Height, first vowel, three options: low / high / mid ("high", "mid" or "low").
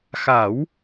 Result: low